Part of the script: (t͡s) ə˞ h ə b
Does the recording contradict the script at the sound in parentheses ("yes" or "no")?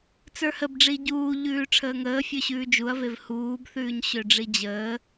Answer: no